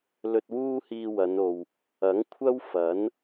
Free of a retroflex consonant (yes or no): yes